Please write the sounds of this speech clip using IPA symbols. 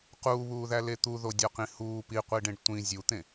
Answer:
q uː β uː ð æ l e t̪ u ð o dʲ ɒ q ĩ h uː p i qʷ i ɖ ẽ ɖ tʷ ĩ zʲ u t̪ ẽ

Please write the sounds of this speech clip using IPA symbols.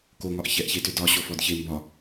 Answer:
k o ŋ ɒ ʔ ç ɛ ʔ ç e t ʏ d ɒ ɕ o f ɔ d ç e m b ɒ

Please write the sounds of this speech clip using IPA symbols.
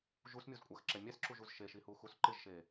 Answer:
ʒ u s mʲ u z kʷʼ a x ǁ ɛ mʲ ɛ s ǁ u ʒ u z ʃ e ʃ i h u x u s ǃ ɪ ʒ ʃ e

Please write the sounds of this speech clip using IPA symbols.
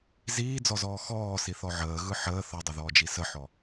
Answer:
z iː d͡z ɔ z ɔː x ɔː s i θ ɔ ʕ əː ɣ ɯ ħ əː θ ɔ dˤ ə ð ɔː d͡ʒ i s ə ħ ɔ

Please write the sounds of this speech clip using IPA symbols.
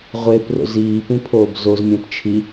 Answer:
ʁʷ e p r o̰ z iː p ĩ pʰ oː b z o z mʲ ã p t͡ʃʰ i

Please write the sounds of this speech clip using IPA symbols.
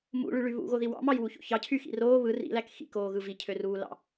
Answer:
m ṵ ɭ y ɭ y β ṵ ɣ o ð i w ɑ̰ m ɑ j w u ç o̰ ç ɑ cʰ y x ḭ r oː β ɯ r ḭ l æ k x ḭ k oː ɣ ɯ v i cʰ ø r uː l ɑ̰

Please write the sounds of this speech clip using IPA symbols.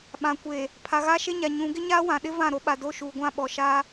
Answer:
ɓ ã˨ kʷ e˨ | pʰ a˨ ɣ aː˦ ʃ e˦ ɲ a˨ ɲ ũ˨˦ ɡ ɪ˦ ɲ aː˦ w ã˨ ɗ ɪ˦ v ã˦˨ ɾ o˦ ɓ a˨ d o˦ ʃ uː˨ ɡʷ ã˦ ɓ ɔ˨ ʃ aː˦

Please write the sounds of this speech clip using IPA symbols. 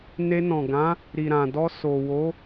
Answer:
n e˧ n ɔ̃˨ ɡ ã˨˦ | ɾ i˨ ɾ ã˨ d ɔ˧ s o˨ w o˨˦

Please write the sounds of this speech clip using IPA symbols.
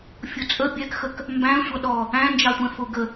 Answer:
fʲ ʊ t͡sʼ ə bʲ ɛ k x ə k | m b æ̃ sʷ ʌ ɗ ɔ | æ̃ n d͡ʒ ɑ tʷ ɛ̃ f ʊ ɡ ə

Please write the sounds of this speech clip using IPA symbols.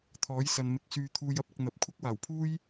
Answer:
t̪ʰ ɔː˨˥ j s ɐ˨ n m ɪ˨˥ k̚ s yː˧ t̪ʰ uː˧ j ɐ˧ p̚ ɪ˧ k̚ n̪ ɐ˨˥ p̚ kʷʰ ɐ˥ k̚ w aː˨˩ w pʰ uː˥ j

